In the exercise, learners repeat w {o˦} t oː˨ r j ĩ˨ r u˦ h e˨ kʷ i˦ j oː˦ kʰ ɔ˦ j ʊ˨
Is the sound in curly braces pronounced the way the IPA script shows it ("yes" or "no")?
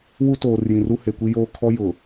no